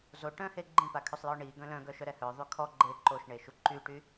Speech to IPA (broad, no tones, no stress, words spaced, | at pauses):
zoʈœ̃he ɡ͡ǃĩpakʰøsˤjɔ ɳi ɡœ̃lœ̃ ɡœʃœɾɛhœ ðˤykʰɔ ɡ͡ǃe ǃoʃɳeʃu ǃyʈy